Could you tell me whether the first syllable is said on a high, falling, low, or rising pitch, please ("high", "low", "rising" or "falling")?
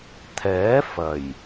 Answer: rising